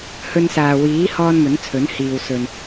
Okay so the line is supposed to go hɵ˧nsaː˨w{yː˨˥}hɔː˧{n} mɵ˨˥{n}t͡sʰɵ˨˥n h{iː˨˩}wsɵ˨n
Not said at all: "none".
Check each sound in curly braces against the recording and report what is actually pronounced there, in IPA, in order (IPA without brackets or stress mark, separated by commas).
iː˨˥, n, n, iː˨